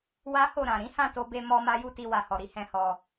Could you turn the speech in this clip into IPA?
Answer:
w a˦ h o˦˨ ɾ ã˨ ɾ ĩ˨˦ h ã˦˨ t o˧ b e˧ m ɔ˧ m a˦ j u˦ t i˧ w a˨ h ɔ˨ ɾ i˧ h ɛ̃˧ h ɔ˧

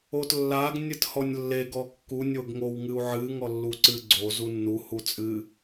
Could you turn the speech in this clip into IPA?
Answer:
o t lː a ɡ nʲ ɨ t h ɔ nʲ lː e ɡ ɔ kː u nʲ o ɡ ŋ o w ŋ ɨ u̯ ʕ ɨ ŋ ɔ lː u ǀ ɨ ɡ͡ǀ o z u nː u h u t͡sʼ ɨ

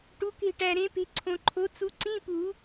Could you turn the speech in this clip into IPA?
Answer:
ʈ u˨˥ k e̤˦˨ ʈ æ˨ ɾ ẽ˨˥ p e̤˨˥ ǀʰ õ˨ ǃʰ o˨˥ t͡s u˨˥ ǀ ĩ˧˥˧ p u˨˩˦

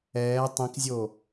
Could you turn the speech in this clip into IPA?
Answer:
ɛː tˤ ĩ k zʲ o

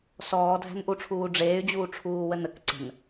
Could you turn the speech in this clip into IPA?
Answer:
s ɔː dʱ æ̤ n ʔ u ʈ͡ʂʰ uː ɖ͡ʐ eː y̯ d͡ʑ uː ʈ͡ʂʰ uː w ə n ə k ǀ ə̤ n

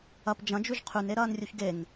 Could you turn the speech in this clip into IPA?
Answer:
ɐ p d͡ʒ ɐ̃ d͡ʒ ʉ ʒ qʰ ʉ n e ɾ ɐː n rʲ u ç ɡ e ŋ

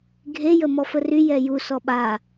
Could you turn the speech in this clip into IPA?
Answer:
ɡʱ e j ə m ɔ f ə r y j ɛ j u s ɔ ɓ a

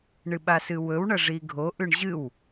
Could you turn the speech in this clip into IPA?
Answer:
ɳ ɨ ɓ a s ɨ w ɵ w ɳ ɐ ʐ i ɡʱ o ʔ ʉ ɳ ʑ ɨ w

